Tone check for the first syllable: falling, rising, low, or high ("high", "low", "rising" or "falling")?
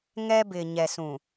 high